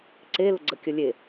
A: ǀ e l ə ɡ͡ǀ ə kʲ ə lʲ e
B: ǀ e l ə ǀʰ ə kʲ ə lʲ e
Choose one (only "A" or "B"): A